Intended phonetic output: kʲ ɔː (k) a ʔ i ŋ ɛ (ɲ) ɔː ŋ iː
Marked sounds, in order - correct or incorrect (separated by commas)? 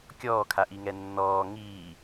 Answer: incorrect, incorrect